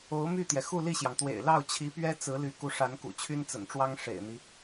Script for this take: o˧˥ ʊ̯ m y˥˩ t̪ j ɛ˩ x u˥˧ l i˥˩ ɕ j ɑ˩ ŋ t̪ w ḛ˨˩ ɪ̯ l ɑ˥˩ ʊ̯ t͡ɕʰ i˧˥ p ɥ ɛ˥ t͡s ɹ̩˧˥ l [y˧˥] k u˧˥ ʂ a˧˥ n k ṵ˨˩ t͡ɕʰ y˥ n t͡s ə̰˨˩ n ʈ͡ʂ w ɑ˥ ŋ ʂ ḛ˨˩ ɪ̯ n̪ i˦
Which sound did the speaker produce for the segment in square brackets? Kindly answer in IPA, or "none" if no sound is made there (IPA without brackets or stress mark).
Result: y˧˥